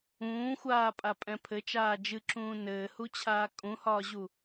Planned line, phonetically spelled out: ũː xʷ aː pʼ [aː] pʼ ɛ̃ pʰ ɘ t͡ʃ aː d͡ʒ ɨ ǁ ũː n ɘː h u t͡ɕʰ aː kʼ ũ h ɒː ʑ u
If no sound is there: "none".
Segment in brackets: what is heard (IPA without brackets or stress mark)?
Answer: a